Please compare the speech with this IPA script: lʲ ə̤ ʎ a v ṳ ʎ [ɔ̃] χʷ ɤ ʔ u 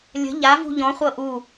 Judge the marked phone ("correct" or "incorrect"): correct